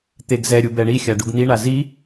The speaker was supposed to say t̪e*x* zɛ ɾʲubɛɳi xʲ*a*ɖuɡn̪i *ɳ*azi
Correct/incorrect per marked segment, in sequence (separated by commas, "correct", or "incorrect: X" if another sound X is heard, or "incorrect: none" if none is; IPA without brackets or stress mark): incorrect: ɡ, correct, correct